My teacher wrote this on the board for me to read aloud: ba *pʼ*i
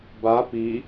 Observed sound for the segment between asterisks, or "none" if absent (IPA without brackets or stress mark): p